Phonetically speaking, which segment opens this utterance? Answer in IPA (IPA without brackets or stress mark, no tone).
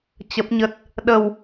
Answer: t͡ɕ